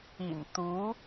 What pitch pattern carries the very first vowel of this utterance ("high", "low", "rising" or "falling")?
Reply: low